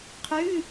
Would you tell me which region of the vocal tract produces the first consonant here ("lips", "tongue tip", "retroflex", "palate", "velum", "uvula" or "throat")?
uvula